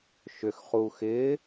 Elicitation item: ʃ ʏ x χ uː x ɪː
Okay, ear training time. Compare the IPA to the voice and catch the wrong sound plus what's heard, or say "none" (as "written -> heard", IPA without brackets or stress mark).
none